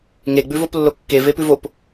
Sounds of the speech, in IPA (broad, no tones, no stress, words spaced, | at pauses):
ŋeɡ͡bʉvoplːo kːevepʉv op